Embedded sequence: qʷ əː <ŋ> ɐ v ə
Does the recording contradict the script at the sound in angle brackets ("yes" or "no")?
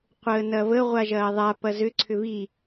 yes